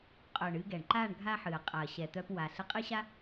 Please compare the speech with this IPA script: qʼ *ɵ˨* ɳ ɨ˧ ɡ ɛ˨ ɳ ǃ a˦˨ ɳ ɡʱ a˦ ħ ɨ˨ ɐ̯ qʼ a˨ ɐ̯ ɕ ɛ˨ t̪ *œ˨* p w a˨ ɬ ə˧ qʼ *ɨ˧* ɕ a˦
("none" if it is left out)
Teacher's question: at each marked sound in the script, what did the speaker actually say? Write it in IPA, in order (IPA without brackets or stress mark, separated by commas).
œ˨, œ˧, ɨ˦